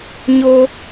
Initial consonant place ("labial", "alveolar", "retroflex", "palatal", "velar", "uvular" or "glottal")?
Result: palatal